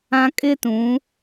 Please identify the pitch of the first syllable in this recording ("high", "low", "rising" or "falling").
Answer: low